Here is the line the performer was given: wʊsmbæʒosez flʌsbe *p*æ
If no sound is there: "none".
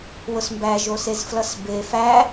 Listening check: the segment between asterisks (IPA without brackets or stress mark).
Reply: f